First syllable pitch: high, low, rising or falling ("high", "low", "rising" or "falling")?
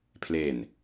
low